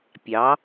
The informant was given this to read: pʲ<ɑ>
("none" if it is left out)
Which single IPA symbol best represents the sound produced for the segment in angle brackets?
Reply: ɑ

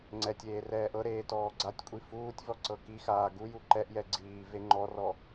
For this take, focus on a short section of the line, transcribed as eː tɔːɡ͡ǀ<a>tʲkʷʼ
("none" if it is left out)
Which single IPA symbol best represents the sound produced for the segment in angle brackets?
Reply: a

